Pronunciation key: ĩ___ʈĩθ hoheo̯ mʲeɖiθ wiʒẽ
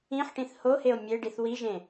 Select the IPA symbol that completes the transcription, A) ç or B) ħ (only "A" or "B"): B